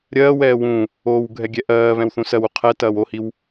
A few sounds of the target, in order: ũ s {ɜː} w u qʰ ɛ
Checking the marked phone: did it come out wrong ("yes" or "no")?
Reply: yes